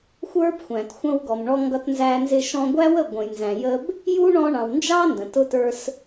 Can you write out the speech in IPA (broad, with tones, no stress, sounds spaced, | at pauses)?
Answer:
xʷ ə˞˦ b xʷ æ̃˨ t xʷ ə̃˧ w ɡ ɔ˨ m ɳ ɔ˧ ŋ ɡ ʌ˧ t n z æ˧ n z ɪ˧ ʃ ɔ̃˧ ɡʷ æ˦ w ə˦˨ ɡʷ ə̃˨ j n z æ̃˨ j ə˦ b | j u˦ ɳ ɔ̃˧ ɳ ɑ̃˨ w n d͡ʒ ɑ˦ n d ə̃˨ t ʊ˧ t ə˞˧ s